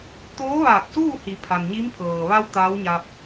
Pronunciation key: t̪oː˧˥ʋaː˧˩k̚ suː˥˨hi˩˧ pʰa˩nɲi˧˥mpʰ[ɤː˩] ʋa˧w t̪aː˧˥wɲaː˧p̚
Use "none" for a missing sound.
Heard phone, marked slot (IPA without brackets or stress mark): ɤː˩